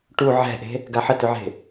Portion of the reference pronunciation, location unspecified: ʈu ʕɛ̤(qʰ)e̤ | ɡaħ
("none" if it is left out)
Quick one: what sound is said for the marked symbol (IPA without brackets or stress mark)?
ʔ